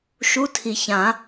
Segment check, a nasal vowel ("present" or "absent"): present